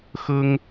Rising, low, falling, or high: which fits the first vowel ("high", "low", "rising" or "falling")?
high